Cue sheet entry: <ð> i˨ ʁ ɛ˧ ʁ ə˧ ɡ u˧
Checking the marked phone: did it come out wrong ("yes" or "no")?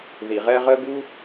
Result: no